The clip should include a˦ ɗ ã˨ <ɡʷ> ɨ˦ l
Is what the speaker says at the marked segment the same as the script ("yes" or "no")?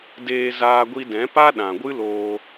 yes